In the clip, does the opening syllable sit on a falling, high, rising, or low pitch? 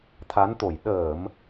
rising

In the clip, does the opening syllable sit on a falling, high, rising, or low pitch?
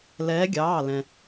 rising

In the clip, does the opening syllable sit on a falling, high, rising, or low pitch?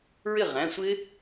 falling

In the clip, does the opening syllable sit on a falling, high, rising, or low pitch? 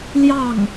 falling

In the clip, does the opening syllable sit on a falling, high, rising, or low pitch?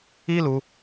high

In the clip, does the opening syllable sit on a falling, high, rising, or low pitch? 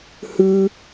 high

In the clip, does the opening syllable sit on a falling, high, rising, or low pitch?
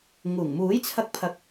low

